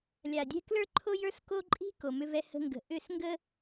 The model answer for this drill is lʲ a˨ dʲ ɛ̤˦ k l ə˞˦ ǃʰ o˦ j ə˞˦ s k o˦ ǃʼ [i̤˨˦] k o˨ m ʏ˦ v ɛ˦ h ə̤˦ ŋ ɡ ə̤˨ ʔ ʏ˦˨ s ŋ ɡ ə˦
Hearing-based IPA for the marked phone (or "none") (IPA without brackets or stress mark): i̤˦